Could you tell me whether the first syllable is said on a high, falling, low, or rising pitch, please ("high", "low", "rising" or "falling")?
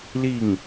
falling